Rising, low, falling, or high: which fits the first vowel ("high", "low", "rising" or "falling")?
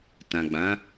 low